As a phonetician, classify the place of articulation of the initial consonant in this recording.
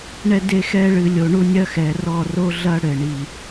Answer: retroflex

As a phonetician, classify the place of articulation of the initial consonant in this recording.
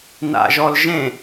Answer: alveolar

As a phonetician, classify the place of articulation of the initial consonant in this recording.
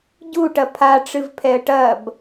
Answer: palatal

